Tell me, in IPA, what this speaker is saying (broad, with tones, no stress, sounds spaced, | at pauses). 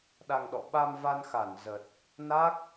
ɗ a˧ ŋ ɗ ɔ̰˧˨ ɓ a˧ m v a˧ n x a˧˩ n z ə˨˩ t̚ | n a˦˥ k̚